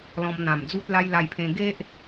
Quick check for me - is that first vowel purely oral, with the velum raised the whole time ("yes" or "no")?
no